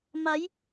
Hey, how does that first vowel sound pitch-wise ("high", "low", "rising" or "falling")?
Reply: rising